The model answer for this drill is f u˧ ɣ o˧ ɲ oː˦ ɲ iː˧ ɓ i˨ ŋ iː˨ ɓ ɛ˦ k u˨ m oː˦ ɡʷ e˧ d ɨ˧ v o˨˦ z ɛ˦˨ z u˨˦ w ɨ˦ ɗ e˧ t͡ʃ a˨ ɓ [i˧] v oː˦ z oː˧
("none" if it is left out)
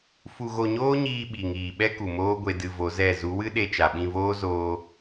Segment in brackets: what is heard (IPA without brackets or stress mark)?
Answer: ĩ˧